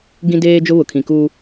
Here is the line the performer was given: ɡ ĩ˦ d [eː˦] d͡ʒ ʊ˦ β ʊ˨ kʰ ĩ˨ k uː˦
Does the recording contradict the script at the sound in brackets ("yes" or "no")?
no